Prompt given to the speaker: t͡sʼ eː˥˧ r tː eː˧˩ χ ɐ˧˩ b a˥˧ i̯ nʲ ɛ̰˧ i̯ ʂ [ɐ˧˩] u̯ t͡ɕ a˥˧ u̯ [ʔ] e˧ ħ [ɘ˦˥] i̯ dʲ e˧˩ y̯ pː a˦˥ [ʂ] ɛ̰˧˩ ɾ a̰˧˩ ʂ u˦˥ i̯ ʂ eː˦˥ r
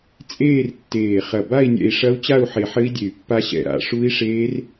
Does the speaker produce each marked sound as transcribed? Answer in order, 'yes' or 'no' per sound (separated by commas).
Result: no, no, yes, no